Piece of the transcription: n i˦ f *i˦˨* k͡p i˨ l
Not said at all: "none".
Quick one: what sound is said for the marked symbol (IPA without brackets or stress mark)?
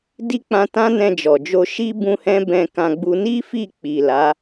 i˦˨